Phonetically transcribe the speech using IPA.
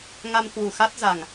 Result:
ŋ a˧ m k w u˨˩ x a˦˥ t̚ z a˨˩ ŋ

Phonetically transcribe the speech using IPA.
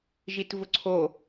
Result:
ʒ i t v ʊ ǀʰ o

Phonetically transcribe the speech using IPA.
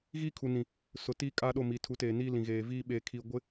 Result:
ɣ iː˦ kʰ u˨ n ĩ˨ | s ʊ˨ t iː˦ kʼ aː˦ ɗ o˦˨ m i˨ tʰ u˨˦ t eː˨ n iː˦ l ĩ˨ ɣ eː˨ v iː˦ ɓ eː˦ kʰ i˦ ɡʷ ɪ˦

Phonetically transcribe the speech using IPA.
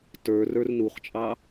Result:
t ə˞ r ə˞ r n u χ t͡ʃʼ ɑ

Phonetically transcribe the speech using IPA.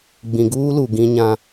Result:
ɡ͡b ĩ˨ ɡ uː˦ l u˨ ɡ ĩ˦ ɲ ã˦

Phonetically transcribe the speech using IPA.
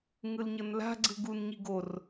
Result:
ŋ ɯ l ɲ ɤ n l a̤ ɡ͡ǀ ɯ ɡ u n ɲ i ɡ o r

